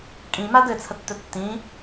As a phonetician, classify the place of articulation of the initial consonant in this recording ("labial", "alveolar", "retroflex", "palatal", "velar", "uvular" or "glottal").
velar